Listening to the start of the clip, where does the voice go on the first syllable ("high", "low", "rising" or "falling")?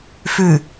low